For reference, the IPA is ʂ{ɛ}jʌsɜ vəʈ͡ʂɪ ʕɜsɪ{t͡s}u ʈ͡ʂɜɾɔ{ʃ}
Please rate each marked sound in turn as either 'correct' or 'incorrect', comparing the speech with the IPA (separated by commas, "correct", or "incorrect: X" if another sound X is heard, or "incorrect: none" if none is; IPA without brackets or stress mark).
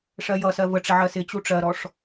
incorrect: ɜ, incorrect: t͡ɕ, incorrect: ʂ